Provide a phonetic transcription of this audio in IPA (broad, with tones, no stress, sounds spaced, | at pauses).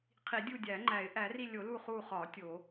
qʰ i˨˩˦ dʲ u˦˨ dʲ æ˨˩˦ ŋ͡ǃ æ˨˩˦ ɪ̯ ʔ æ˨˩˦ r i˦˨ lʲ o˨˩˦ l u˦˨ χ u˦˨ χ ɒ˨˩˦ tʲ o˨˩˦